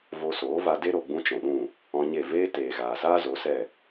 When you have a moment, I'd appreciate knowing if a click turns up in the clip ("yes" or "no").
no